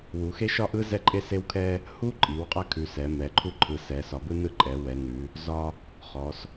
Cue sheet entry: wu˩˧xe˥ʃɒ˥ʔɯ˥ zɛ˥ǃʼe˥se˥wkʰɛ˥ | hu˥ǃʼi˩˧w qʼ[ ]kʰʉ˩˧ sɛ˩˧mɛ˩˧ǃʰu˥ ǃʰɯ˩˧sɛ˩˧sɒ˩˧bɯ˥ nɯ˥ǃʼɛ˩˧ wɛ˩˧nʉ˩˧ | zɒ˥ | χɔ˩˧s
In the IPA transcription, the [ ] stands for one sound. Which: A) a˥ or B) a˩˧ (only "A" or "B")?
A